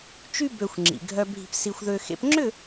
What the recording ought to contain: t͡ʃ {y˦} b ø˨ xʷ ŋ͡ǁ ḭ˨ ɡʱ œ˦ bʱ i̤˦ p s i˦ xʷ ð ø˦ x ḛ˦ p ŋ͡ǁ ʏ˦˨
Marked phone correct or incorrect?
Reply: correct